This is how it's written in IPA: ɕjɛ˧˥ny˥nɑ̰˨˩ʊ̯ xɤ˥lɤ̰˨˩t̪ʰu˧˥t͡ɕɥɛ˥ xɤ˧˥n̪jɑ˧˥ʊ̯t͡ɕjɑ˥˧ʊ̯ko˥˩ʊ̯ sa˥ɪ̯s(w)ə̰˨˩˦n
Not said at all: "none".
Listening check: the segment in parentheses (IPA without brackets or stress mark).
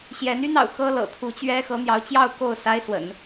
w